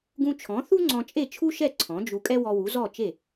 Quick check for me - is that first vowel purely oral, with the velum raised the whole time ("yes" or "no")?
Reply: no